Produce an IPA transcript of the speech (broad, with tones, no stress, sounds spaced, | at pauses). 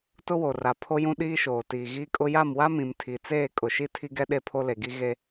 t ʊ˦ w o˨ r a˨ pʰ o˦ j ũ˦ ɗ iː˦ ʃ oː˨ t iː˨ ɣ iː˦ kʼ ʊ˦ j a˦˨ m w a˦ m ĩ˨ m tʰ i˨ t͡s eː˦˨ kʼ ʊ˨ ʃ i˦ tʰ i˦ ɡ ɛ˦ ɗ e˦ pʰ o˦ l e˨ ɡ i˦ ɣ e˦